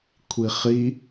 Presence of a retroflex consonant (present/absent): absent